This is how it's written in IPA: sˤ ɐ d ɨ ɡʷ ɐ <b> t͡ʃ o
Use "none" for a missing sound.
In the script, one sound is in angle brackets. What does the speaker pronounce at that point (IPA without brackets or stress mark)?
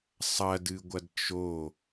d